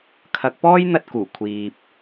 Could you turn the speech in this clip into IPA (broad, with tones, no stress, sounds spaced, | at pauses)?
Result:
kʰ ɐ˨˥ k̚ p ɔː˥ j n̪ ɐ˧ t̚ k uː˨˩ kʷʰ iː˧ p̚